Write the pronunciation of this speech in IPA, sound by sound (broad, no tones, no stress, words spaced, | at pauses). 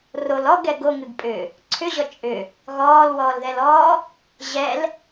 rol ɔɡɛɡ oŋɨɡpʼʏː | ǀʰʏʑɔ t͡ʃʼʏ | ɣɔːlwɔːlðɛlɔː | ʑɛl